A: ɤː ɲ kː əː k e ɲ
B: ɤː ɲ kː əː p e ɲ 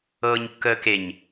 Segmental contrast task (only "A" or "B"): A